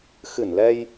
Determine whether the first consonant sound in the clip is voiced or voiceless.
voiceless